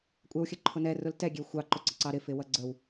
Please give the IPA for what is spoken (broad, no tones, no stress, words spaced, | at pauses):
kʷʼɛwxʲəǃʰʊ nɛrʊl tɛɡʲɛw xʷɑǃʊǀɪǀɑ ɾɪfɪwʌ ɡ͡ǀəw